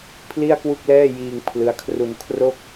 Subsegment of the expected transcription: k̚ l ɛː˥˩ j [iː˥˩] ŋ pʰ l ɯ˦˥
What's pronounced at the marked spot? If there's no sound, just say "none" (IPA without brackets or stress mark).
iː˧